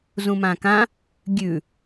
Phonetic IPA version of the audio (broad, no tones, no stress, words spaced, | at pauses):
zũmãkã | ɡʲʉ